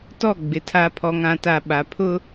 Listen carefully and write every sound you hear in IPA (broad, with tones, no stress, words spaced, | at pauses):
tɔ˦˨ɡ͡bɪ˨ tʰa˨pʰɔ˨ŋã˨ta˨ ɓa˨pʰʊ˦